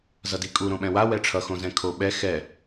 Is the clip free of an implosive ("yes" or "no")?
no